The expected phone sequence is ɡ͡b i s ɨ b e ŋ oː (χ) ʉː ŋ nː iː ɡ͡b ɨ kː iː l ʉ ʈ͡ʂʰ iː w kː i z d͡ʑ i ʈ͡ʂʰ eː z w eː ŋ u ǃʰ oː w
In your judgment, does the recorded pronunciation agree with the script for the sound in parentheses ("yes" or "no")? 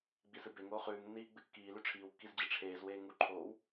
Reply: yes